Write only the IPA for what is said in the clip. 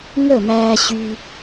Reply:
ŋ ə˦˨ m æː˦ ɕ y˦

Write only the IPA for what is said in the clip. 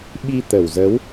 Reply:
ɓ i˧ t̪ ə˨˩ w z ə˨˦ w

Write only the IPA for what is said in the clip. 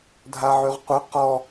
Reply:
dʱ a ʕ y ʁ qʷ œ q ɔ

